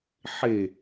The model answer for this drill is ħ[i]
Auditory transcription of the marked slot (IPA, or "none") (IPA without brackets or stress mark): e